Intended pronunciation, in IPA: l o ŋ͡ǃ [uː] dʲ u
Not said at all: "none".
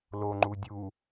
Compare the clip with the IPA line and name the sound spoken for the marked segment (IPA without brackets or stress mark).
u